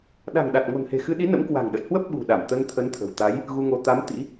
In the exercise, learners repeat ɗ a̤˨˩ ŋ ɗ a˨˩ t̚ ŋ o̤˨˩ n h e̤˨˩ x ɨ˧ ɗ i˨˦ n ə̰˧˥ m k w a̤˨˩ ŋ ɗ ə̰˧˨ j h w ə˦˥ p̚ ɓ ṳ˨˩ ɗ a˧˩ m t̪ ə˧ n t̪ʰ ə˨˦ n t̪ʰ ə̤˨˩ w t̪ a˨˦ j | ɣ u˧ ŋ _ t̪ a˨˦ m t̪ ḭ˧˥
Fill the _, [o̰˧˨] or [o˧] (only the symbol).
o˧